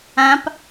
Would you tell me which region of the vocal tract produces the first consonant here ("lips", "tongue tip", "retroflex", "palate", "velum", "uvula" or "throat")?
lips